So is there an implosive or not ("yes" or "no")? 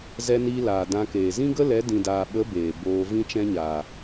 yes